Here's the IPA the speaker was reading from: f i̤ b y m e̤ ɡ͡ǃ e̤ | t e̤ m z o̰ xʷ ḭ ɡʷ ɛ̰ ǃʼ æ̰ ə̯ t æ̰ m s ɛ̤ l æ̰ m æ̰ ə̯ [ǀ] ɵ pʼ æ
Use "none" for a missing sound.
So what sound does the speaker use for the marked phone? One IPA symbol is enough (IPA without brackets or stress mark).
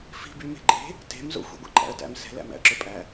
ǁ